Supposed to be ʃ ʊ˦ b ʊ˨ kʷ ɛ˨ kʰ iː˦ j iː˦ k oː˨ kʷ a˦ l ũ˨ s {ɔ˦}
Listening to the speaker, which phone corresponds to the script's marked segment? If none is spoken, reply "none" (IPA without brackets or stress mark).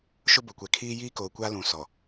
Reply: ɔ˨